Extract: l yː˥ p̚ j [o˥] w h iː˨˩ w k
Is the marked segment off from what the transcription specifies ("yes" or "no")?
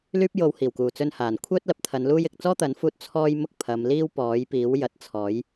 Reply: yes